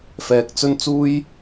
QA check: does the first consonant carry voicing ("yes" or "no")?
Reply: no